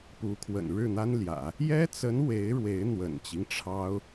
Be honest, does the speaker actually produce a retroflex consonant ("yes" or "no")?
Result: yes